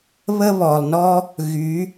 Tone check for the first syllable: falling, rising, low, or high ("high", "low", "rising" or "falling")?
high